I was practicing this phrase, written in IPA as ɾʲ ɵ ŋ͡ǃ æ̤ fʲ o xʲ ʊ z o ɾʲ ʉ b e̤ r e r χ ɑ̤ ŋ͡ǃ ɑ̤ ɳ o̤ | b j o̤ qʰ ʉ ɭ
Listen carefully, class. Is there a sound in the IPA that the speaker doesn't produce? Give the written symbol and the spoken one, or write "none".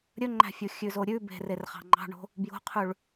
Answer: ʊ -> ʉ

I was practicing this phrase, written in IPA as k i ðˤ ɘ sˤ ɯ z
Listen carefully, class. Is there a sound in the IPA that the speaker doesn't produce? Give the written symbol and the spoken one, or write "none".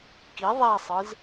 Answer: ɘ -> e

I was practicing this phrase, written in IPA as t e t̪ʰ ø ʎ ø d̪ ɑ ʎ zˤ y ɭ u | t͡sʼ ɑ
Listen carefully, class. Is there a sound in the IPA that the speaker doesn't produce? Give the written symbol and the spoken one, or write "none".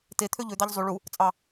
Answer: none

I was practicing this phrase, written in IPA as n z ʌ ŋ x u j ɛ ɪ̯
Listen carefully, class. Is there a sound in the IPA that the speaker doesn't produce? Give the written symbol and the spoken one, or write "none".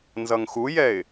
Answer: none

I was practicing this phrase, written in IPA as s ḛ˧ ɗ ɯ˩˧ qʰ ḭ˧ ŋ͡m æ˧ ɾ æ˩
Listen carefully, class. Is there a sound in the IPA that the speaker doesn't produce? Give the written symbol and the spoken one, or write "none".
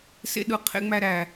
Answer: ḭ˧ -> ḛ˧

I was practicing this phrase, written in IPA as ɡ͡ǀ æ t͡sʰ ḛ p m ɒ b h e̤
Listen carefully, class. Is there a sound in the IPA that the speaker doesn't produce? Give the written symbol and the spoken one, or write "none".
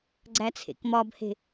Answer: p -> k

